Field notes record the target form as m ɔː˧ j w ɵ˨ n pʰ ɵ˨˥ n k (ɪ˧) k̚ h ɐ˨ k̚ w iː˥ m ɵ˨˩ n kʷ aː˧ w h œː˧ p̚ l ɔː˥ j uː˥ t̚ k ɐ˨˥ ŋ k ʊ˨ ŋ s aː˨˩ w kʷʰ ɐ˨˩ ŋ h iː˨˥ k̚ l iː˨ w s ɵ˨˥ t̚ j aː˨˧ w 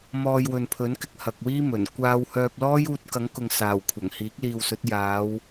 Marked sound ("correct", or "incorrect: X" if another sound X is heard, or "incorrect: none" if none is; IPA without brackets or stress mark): correct